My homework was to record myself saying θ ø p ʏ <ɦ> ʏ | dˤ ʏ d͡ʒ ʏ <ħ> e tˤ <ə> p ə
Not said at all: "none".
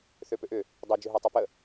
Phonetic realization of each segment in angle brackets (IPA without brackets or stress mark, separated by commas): ʔ, ɦ, ø